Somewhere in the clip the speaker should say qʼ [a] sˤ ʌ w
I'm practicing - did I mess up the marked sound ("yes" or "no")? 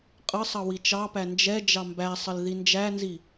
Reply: yes